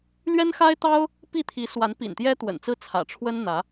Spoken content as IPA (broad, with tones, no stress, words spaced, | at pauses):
lɥɛ˥nxa˥ɪ̯t̪ɑ˥ʊ̯ | pi˥˩t̪ʰi˧˥swa˧˥n pḭ˨˩nt̪jɛ˥t̪wə̰˨˩nt͡sɹ̩˥ t͡sʰä̰˨˩ʈ͡ʂʰwə˥n n̪ä˧˥